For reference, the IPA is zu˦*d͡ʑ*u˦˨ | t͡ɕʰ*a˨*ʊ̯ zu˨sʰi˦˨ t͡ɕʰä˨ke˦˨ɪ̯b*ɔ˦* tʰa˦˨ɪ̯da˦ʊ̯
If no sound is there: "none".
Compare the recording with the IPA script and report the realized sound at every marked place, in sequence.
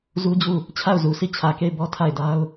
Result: d͡ʑ, a˦˨, ɔ˦

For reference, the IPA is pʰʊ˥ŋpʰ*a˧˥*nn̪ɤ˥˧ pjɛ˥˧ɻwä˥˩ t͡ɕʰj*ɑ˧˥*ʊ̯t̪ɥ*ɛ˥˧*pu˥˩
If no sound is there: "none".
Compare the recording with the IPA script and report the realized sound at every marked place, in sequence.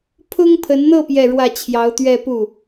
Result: ə˧˥, ɑ˧˥, ɛ˥˧

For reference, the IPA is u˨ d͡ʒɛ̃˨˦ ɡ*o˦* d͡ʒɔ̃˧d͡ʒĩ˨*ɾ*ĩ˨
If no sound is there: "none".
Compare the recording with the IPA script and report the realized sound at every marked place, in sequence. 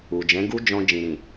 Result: u˦, ɾ

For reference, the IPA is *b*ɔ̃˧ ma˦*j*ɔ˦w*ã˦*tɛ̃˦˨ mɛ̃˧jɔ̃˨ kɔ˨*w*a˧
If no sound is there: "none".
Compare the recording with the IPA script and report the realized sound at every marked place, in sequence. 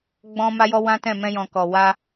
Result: ɡ͡b, j, ã˦, w

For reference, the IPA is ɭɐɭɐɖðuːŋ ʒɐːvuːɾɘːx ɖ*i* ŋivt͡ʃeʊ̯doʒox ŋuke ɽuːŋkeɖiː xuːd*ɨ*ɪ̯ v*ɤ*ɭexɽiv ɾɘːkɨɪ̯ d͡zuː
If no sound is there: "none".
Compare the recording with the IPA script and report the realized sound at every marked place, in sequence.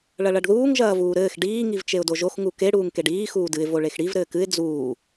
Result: iː, ɨ, o

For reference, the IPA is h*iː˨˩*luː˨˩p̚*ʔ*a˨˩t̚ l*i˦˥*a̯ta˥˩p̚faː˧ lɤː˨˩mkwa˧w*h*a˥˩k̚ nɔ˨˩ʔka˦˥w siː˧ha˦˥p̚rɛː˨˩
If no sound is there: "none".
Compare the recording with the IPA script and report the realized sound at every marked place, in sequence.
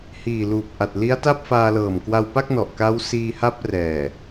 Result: iː˨˩, ʔ, i˦˥, p

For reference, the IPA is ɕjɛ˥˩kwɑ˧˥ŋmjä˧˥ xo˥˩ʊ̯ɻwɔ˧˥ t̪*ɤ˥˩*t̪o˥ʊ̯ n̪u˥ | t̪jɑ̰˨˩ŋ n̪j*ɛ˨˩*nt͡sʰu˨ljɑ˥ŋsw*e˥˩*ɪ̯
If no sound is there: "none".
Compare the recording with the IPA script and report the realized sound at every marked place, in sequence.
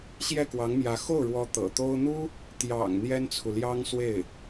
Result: ɤ̰˨˩, ɛ˥, e˥˩

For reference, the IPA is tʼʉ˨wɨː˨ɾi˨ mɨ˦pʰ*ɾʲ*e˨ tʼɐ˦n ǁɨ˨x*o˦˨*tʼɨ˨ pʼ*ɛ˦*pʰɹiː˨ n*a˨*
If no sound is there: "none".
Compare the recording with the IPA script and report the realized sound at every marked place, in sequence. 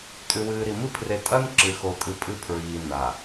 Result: r, o˨, ɨ˦, a˨

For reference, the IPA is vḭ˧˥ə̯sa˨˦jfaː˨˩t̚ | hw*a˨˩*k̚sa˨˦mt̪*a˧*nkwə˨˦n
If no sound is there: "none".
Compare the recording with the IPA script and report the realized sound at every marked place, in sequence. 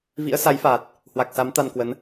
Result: a˨˩, a˧

